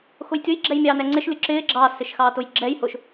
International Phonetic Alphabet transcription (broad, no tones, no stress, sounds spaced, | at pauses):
x ʊ j tʲ ʊ j ɡ͡ǁ ɛ j mʲ ɑː n ɛ ŋ͡ǀ ɪ ʃ lʲ ʊ ǁ ɪː ɡ͡ǁ ɑ s ɪ ʃ x ɑː t ʊ j ɡ͡ǁ ɛ j h ʊ ʃ